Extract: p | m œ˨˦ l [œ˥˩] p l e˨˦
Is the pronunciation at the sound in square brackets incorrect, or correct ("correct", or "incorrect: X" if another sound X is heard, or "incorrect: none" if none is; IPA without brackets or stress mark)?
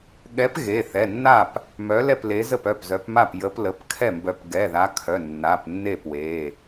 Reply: incorrect: ɛ˥˩